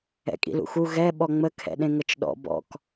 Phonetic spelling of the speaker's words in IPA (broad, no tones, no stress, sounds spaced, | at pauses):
ɛ̰ kʼ ḭ l ṵ x u ɣ ɛ ɓ ɔ ŋ͡m ə kʰ ɛ̰ ɗ ẽ ŋ ə t͡ʃ ɗ ɔ̰ b ɔ̰ k